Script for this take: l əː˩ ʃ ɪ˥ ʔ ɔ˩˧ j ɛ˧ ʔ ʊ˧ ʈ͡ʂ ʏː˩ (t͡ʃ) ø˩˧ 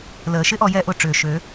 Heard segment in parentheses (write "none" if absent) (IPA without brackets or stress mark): ʃ